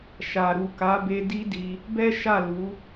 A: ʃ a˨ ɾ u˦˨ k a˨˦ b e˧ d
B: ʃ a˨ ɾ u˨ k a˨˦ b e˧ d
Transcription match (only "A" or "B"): B